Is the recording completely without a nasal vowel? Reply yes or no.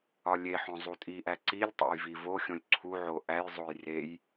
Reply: no